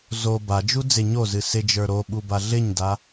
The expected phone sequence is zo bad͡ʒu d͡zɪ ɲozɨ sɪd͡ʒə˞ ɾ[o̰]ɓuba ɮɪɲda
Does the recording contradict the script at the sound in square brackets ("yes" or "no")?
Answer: yes